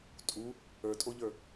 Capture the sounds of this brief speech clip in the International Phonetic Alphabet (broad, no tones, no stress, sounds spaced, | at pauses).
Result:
tʼ u | ə˞ tʼ o ʎ ə˞